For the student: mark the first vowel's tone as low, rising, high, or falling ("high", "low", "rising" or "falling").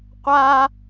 high